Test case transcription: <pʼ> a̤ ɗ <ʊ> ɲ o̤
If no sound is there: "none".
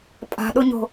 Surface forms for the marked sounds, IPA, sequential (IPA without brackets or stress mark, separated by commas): pʼ, ʊ